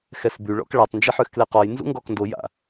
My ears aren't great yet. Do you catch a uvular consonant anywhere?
yes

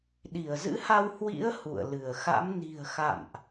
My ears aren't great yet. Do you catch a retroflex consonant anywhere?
no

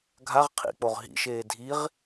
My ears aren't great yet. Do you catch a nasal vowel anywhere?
no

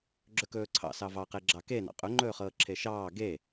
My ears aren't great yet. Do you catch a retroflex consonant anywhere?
no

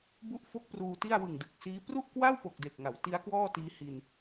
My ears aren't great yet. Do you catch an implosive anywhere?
no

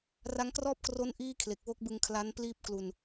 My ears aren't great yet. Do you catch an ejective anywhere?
no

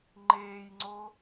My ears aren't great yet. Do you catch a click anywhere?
yes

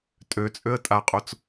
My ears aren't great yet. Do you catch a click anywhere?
no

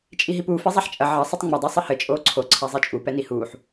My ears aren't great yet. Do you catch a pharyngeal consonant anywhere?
yes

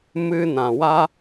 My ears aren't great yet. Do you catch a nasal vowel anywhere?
yes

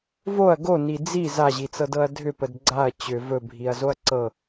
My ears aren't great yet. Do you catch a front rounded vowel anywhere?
yes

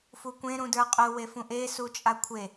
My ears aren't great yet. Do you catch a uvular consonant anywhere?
yes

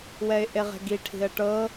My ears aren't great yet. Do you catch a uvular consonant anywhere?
yes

